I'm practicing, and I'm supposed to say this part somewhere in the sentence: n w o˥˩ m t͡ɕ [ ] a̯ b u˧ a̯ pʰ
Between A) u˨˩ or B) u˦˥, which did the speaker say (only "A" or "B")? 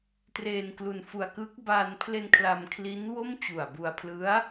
A